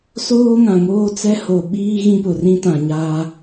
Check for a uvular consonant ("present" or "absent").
absent